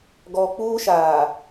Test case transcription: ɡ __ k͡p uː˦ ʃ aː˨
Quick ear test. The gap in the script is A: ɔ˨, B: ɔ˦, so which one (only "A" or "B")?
A